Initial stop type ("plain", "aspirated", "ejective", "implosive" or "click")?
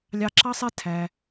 click